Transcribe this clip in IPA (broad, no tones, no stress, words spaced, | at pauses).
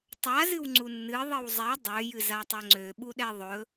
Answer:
tˤa zɨwŋ͡ǀunːɨ ðˤɨwzˤɛ dˤø jɨzatˤøŋ͡ǀø ɓuɗɛðˤɵ